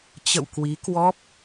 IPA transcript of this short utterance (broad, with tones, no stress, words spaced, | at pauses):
t͡ɕə̰˧˨wkwi˨˦kwɔ˦˥p̚